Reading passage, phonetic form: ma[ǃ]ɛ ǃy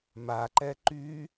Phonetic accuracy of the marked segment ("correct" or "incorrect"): correct